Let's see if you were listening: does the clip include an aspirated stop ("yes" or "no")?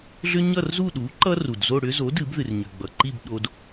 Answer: no